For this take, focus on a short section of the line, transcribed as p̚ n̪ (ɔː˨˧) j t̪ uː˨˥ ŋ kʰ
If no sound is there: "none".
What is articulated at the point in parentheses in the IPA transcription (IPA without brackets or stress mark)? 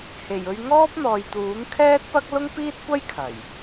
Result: ɔː˨